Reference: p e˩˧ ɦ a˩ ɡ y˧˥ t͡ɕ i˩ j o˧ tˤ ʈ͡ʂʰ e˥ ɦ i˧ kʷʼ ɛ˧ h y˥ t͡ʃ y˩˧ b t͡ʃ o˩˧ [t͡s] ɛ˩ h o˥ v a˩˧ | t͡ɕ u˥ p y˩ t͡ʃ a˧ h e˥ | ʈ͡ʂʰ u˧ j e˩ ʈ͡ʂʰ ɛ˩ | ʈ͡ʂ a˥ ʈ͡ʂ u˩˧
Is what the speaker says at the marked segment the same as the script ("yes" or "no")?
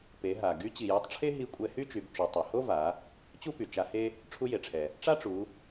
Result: no